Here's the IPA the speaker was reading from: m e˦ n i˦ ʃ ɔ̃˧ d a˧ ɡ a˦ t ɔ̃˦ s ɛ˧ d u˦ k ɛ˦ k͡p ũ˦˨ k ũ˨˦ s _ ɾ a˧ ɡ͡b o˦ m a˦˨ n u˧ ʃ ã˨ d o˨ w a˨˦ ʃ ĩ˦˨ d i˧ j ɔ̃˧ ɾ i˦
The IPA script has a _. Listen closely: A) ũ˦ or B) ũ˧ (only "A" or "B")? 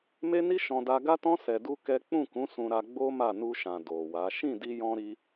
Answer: B